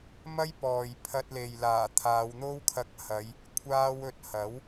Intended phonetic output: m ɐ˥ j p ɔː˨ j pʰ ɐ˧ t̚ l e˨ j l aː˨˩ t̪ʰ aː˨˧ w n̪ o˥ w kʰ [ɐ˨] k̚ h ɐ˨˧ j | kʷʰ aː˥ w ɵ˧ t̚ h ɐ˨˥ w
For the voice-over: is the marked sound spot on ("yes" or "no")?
no